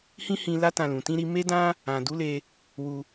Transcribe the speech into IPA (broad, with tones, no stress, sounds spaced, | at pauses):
h ĩ˦ h ĩ˧ l a˦ t ã˧ l ũ˨ t ĩ˧ ɾ i˧ m e˦ d ã˦ | ã˨ d u˨˦ l e˧ | w u˧